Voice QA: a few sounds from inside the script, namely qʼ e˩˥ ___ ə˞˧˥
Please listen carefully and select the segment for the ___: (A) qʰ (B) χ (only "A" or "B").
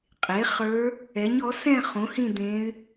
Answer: B